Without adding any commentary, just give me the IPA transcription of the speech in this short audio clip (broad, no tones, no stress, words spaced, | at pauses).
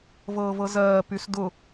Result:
vɤːvɤzɜː pysdʊ